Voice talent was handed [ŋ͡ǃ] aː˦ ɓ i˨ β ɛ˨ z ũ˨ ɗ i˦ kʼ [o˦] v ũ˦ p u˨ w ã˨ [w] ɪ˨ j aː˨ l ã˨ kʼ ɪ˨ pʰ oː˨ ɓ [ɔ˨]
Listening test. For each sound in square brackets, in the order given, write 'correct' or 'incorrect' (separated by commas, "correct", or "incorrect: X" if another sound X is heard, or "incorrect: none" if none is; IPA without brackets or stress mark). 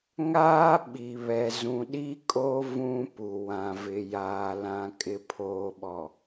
incorrect: ŋ, correct, incorrect: v, correct